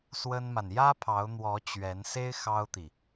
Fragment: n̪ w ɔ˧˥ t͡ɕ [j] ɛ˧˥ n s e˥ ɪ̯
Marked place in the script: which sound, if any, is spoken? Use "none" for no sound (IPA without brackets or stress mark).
ɥ